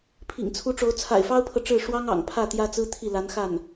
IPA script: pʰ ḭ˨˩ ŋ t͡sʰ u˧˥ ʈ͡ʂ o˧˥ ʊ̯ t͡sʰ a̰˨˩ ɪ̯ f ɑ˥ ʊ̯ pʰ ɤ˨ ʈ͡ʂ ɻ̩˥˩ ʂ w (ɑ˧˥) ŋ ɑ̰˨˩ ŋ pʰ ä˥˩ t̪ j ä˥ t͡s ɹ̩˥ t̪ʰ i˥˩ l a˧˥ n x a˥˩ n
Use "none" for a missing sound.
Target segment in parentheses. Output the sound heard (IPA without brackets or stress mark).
ɑ˥